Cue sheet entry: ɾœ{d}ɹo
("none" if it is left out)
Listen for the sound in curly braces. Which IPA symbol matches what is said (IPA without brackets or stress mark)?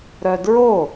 d